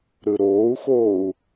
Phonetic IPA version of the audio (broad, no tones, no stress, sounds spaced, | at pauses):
ɾ ɯ ɾ oː u̯ x oː u̯